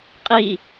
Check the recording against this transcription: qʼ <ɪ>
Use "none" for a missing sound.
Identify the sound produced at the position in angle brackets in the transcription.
i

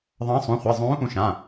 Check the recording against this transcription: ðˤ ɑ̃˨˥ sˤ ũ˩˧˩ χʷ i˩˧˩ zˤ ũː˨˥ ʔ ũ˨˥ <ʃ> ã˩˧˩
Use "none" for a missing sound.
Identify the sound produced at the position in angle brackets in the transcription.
ʃ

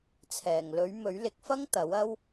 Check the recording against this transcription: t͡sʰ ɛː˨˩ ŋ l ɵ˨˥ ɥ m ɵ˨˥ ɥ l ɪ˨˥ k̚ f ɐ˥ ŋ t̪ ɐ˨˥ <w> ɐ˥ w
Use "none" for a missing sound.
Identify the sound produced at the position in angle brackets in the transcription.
w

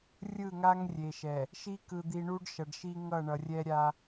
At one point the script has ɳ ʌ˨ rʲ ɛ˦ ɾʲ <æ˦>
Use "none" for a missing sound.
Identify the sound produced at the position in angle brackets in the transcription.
a˦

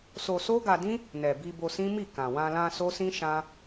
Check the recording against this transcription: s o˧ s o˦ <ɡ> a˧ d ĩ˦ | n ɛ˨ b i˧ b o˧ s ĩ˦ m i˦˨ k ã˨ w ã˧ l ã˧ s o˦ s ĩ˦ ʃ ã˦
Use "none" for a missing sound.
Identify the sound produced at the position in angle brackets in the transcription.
ɡ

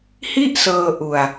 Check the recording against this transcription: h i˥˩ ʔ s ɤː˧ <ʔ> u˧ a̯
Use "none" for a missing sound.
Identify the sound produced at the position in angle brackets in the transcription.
ʔ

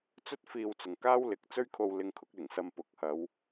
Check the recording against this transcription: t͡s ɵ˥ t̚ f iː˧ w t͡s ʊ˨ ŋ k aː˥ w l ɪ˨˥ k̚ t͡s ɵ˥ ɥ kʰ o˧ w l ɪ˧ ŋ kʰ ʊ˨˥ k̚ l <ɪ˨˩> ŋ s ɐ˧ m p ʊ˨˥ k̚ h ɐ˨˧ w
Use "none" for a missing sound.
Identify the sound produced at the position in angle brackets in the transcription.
ɪ˨˩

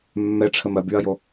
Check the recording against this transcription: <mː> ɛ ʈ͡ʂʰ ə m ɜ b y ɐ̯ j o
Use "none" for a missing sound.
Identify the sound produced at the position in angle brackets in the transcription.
mː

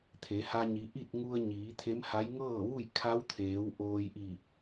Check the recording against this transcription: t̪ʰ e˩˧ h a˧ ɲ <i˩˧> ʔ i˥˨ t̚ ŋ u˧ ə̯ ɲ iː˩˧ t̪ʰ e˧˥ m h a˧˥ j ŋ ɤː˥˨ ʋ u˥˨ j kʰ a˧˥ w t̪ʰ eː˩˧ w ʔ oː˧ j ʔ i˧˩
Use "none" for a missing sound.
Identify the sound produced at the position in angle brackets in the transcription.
i˩˧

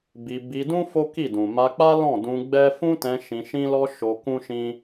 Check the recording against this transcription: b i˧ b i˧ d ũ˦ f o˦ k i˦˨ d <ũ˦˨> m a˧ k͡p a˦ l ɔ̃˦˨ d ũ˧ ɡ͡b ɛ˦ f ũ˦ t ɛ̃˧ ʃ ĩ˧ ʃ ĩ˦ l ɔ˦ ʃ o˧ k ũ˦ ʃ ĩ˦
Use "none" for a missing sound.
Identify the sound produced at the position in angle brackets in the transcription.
ũ˨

